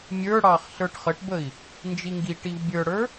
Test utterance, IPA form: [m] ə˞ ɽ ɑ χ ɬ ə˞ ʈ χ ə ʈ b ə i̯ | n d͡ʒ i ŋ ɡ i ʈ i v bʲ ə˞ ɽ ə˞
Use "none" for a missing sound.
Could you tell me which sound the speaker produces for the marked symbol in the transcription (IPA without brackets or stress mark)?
mʲ